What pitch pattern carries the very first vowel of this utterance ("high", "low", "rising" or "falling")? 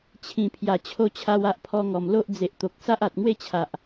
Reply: low